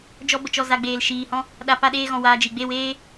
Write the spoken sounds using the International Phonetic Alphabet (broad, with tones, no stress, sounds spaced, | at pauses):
d͡ʒ ɔ˧ b ə˨ t͡ʃ ɔ˨ z a˨ ɡ͡b eː˨ l ʃ iː˨ h ɔ̃˦ | ɗ a˨ p a˧ ɗ eː˧ ɣ ɔ̃˨ w aː˧ d͡ʒ i˨ ɡ͡b e˦˨ w eː˦